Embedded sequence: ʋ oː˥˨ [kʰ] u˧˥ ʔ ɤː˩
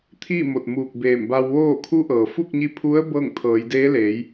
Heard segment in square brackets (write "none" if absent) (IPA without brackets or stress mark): kʰ